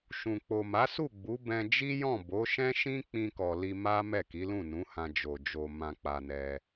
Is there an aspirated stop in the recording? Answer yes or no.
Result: no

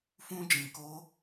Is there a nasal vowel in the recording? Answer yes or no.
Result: yes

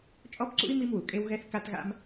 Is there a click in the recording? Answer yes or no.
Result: yes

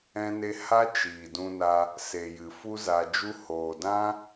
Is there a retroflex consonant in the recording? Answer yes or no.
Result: no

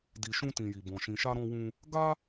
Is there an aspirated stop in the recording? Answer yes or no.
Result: no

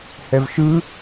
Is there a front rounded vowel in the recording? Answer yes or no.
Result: no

